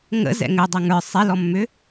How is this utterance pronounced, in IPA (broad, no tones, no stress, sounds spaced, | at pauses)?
ŋ ə̰ z ɛ̰ ŋ ʏ dˤ ɛ ŋ ə˞ sˤ e l ɔ mː ʏ